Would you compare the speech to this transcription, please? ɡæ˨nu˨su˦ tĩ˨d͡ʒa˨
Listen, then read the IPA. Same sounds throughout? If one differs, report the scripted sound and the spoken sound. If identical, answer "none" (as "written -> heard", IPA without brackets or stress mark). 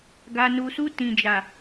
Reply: æ˨ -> a˨